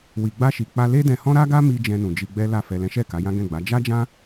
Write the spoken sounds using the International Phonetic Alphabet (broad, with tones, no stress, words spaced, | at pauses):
wi˨ɡ͡ba˧ʃi˨ k͡pa˧le˦dɛ̃˧ hɔ̃˦ɾa˦ɡa˦mi˧ d͡ʒɛ̃˧nũ˨ d͡ʒi˧ɡ͡bɛ˦la˦˨ fɛ˨lɛ̃˨˦ʃɛ˦˨ ka˨˦jã˦ ɡɛ̃˦˨ɡ͡ba˨˦ d͡ʒa˦d͡ʒã˦